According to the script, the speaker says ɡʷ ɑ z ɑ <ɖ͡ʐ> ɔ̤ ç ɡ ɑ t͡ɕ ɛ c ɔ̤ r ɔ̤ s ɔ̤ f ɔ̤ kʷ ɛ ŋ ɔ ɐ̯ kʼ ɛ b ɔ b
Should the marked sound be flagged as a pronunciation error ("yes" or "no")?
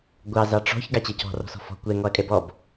yes